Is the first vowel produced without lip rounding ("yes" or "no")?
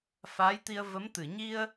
yes